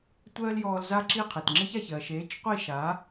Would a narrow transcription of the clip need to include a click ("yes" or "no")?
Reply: yes